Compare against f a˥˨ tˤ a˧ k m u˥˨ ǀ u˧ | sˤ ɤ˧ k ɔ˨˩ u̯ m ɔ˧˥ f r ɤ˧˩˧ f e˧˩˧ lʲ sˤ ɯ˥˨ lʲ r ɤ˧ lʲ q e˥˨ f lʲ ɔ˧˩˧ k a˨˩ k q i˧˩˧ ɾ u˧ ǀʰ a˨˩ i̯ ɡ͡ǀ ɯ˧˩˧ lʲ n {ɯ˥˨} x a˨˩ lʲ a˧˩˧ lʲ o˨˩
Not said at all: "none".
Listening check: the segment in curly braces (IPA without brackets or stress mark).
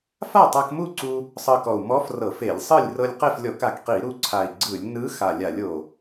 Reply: ɯ˧˥